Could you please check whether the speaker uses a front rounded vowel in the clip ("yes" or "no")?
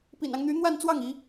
yes